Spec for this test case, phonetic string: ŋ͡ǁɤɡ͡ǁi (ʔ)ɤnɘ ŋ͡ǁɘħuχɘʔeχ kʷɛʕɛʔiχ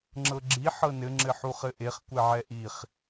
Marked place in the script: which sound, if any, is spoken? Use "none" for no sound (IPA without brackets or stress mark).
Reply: ħ